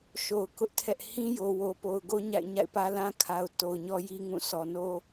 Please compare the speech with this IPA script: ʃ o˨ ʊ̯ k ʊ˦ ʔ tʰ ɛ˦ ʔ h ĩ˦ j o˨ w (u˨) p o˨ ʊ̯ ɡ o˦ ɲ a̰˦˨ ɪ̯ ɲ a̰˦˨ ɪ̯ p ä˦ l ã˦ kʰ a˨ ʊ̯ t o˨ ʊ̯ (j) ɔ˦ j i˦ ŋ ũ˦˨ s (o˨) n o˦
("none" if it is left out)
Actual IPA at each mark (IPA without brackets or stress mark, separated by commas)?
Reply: o˨, ɲ, ɔ˨